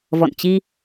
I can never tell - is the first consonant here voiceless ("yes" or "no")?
no